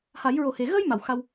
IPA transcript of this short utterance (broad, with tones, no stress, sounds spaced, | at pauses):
h a˨˩˦ j ɹ o˨˩ h e˨˩ ɣ ə˧ j m a˨˩˨ w x a˧ w